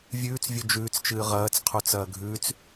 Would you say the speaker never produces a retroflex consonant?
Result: yes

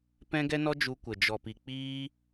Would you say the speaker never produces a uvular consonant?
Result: yes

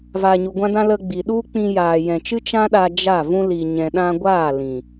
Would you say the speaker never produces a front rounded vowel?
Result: yes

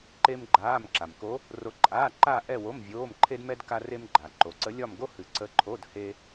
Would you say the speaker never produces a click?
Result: no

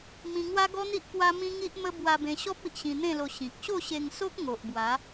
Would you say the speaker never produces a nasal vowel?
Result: no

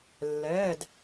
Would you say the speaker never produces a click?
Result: yes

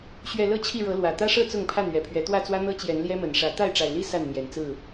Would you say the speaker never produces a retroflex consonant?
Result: no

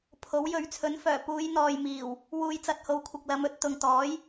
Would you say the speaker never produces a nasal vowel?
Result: yes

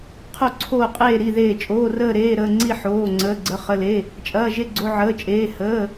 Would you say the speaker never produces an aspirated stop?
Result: no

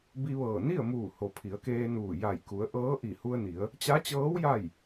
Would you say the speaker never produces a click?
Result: yes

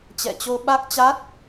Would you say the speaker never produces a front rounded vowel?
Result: yes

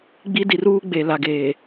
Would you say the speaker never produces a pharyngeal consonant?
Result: yes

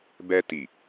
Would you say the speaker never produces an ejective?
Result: yes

